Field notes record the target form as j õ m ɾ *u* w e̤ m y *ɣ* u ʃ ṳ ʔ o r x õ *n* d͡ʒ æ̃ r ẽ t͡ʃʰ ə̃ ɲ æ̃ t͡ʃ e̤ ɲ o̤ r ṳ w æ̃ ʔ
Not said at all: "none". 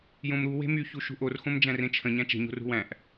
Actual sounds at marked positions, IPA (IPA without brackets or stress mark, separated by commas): u, ç, m